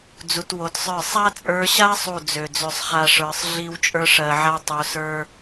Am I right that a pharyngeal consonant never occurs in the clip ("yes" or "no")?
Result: no